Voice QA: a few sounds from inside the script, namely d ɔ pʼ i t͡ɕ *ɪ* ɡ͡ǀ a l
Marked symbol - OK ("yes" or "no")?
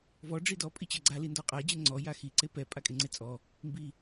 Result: no